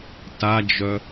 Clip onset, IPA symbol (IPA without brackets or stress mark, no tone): t